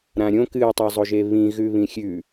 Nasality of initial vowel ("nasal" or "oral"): nasal